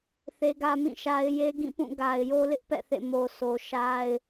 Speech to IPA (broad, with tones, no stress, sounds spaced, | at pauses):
θ e˦ ɡ ä˦ m ĩ˦˨ ʃ a˦ ɪ̯ j e˦ ɡ ĩ˦˨ p ũ˦˨ ɡ a˨ ɪ̯ j o˦ l ɪ˦ ʔ p ɛ̰˦˨ θ ḛ˦˨ m o˨ s o˨ ʃ a˦ ɪ̯